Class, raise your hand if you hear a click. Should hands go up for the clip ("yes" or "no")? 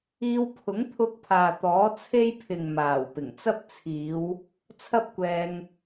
no